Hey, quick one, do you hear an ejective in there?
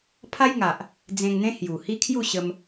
no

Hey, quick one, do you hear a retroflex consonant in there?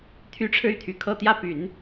yes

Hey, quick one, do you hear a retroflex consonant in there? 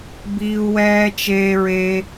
no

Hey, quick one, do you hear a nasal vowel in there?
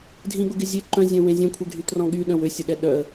yes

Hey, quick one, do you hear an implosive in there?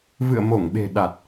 yes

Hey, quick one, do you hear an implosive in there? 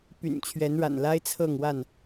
no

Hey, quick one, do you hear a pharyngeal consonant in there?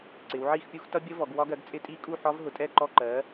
yes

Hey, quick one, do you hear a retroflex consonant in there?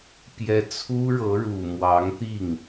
yes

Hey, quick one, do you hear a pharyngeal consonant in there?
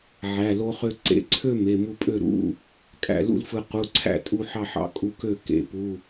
yes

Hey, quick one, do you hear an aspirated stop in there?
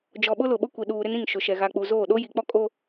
no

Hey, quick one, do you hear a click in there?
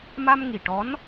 no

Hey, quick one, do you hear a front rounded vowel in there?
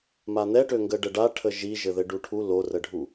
yes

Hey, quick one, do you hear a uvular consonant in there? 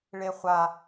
yes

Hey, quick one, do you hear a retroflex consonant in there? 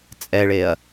yes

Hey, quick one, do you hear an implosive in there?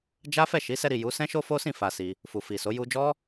no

